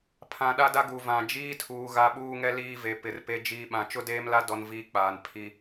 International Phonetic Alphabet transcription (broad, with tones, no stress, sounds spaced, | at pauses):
pʰ ã˨ ɗ a˦ d a˦ ɡ u˨ v ã˨ d͡ʒ iː˦ tʰ uː˨ ɣ a˦ ɓ uː˦ ŋ ɛ˦ l iː˦ v e˨ p ɪ˨ r p e˦ d͡ʒ iː˦ ɓ ã˦ t͡ʃ ʊ˦ d eː˦ m l a˦ d ɔ˦ n v iː˦ k͡p aː˨ n pʰ i˦